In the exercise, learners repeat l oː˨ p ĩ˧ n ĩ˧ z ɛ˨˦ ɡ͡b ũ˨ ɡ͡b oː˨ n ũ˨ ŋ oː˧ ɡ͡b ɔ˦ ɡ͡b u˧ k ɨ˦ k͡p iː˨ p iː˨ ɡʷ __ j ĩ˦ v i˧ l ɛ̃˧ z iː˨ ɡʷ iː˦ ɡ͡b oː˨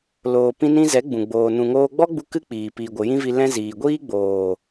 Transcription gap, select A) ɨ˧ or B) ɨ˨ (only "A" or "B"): B